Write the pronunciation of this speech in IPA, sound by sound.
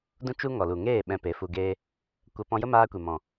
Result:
d ũ˦ t͡ʃ u˦ ŋ ɔ˨ l u˨ ŋ eː˦˨ ɓ ɛ̃˧ p e˨˦ f u˧ ɡ eː˦ | kʷ ə˧ p ɔ̃˧ j ə˦ m aː˧ kʷ e˨ m ɔ̃˨

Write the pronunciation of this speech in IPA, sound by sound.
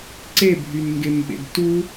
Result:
ǀ e bʱ y n ŋ ɡ e m ɓ ḛ d t u

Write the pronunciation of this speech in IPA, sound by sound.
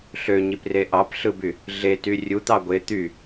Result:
ɬ ø ɲ i p r e ʔ ɑ p ɬ ɯ b y | ɮ e t y rʲ u t̪ ɑ ɡʷ e t̪ y

